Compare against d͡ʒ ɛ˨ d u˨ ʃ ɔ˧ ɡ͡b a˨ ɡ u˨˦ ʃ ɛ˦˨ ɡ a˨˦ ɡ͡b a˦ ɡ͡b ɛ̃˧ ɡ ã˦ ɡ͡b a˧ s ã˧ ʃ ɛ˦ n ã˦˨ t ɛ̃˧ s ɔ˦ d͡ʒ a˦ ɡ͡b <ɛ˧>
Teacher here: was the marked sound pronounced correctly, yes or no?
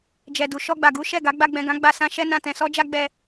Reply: yes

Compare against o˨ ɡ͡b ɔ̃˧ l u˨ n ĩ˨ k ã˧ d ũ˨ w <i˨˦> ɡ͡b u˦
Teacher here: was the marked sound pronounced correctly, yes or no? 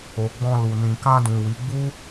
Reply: yes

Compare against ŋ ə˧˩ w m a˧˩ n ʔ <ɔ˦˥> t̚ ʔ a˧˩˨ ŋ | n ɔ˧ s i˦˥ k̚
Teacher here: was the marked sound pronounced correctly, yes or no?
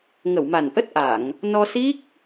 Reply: no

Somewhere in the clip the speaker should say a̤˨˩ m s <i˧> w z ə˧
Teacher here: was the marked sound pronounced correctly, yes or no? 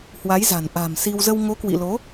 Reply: yes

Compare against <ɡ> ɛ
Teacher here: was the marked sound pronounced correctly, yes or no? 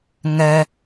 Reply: no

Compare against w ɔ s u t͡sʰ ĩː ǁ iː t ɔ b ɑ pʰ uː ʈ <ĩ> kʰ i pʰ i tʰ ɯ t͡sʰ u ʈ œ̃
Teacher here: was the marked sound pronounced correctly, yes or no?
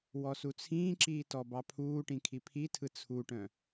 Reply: yes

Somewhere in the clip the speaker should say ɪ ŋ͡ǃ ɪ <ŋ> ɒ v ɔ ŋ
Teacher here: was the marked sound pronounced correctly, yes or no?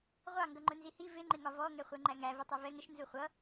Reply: yes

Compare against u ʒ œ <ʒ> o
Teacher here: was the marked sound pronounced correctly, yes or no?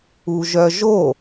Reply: yes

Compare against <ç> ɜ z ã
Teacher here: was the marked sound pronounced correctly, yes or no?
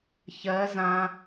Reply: yes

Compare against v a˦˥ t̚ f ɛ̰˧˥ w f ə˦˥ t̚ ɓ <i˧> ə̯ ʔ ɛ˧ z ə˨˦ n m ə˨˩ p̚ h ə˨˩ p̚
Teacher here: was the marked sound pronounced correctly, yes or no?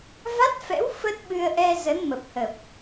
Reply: no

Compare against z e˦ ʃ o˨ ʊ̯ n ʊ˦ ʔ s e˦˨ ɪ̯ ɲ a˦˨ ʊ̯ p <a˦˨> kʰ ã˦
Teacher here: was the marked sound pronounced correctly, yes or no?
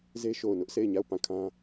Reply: no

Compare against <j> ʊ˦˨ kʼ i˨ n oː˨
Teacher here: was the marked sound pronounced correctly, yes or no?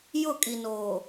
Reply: yes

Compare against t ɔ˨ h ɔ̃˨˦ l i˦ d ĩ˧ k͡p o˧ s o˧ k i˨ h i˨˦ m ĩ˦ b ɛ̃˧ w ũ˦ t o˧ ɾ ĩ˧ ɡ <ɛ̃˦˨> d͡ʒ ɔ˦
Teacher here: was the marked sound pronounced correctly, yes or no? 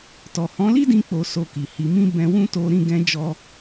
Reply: no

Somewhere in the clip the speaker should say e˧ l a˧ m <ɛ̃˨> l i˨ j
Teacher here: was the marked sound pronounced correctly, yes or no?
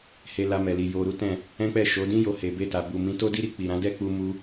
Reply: no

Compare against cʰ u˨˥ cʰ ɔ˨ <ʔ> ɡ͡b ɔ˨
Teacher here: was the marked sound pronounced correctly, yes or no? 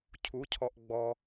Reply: yes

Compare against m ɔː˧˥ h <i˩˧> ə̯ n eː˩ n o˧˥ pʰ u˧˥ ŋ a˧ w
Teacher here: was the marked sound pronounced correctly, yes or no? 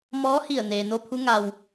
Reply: no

